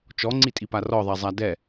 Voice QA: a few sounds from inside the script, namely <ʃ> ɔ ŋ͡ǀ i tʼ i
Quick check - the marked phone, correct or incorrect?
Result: incorrect